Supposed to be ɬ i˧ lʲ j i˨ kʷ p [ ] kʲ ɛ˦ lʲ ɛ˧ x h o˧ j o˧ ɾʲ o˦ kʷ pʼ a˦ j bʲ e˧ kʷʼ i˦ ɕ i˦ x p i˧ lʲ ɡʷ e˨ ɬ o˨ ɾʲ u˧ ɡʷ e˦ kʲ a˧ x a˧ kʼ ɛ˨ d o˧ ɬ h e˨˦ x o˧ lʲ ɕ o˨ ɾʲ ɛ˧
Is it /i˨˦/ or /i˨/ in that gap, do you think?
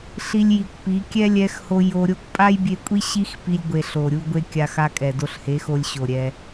i˨˦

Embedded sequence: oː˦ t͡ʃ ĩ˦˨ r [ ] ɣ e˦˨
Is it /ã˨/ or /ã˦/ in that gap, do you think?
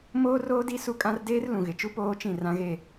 ã˦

